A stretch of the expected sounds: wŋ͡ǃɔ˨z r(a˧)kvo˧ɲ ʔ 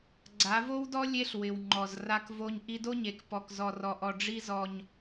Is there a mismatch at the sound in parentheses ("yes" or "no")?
no